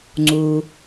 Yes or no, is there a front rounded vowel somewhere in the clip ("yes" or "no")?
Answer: no